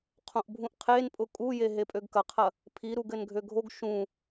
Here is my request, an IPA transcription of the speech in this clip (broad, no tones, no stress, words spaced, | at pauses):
qʰõʔbʱũʔqʰenpʼʊ kʼuje ɦepʼøɡkɐqʰɐ | pʰi ɾuɡɘnɡʱøɡʱoɡ ʃũ